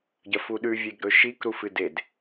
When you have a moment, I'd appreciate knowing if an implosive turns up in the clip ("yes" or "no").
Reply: yes